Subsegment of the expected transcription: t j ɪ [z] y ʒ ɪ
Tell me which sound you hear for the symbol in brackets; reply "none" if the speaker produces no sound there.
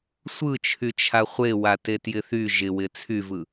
θ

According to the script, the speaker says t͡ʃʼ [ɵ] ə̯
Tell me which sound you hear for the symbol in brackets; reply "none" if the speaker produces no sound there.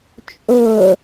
ɵ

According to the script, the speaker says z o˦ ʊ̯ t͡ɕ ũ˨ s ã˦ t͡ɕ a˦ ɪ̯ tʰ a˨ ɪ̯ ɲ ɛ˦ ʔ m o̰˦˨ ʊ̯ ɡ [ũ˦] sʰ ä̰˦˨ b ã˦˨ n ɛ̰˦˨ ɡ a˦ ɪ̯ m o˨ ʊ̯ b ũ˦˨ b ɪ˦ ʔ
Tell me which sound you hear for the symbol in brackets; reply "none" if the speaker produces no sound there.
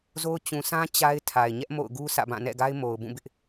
u˦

